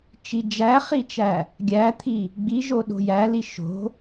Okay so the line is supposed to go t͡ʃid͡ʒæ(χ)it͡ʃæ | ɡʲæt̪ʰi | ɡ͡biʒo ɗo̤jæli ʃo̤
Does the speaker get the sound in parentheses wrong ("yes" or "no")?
no